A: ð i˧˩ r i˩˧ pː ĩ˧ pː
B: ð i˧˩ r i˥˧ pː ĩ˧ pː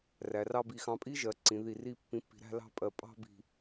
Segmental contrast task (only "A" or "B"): B